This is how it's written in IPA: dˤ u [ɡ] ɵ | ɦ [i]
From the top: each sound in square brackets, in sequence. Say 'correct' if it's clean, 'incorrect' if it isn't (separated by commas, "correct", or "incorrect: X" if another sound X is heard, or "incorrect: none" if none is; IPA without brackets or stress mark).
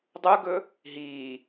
correct, incorrect: iː